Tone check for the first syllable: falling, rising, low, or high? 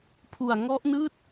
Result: low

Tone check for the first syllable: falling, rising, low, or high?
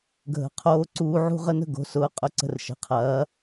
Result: rising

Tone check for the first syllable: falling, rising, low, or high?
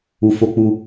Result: low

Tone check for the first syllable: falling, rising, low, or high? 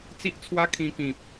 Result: high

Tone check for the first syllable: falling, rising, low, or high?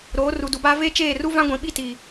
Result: rising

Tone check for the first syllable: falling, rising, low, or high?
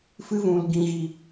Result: high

